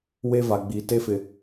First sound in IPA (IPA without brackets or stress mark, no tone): w